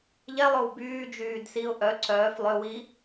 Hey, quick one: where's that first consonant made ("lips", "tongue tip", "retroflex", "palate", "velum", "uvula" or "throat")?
palate